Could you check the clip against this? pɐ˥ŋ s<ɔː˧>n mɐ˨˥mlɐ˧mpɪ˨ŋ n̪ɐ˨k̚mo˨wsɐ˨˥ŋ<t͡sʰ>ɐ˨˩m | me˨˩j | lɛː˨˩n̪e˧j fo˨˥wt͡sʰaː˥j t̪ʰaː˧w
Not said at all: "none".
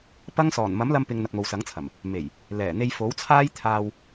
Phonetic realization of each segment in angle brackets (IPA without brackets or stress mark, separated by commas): ɔː˨˩, t͡sʰ